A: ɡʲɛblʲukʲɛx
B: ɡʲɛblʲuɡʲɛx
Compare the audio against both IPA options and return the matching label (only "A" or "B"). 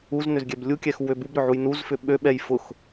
A